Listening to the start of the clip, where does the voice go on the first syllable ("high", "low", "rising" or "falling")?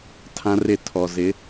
high